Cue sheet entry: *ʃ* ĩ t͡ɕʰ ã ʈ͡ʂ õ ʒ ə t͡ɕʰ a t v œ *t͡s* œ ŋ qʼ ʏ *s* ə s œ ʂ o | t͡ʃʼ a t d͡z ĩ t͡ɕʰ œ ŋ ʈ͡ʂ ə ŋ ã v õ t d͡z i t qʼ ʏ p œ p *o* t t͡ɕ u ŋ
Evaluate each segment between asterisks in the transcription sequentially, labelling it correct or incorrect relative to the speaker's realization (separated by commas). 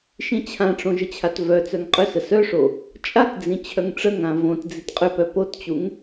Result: correct, correct, correct, correct